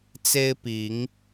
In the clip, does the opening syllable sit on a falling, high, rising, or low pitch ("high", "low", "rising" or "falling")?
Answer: high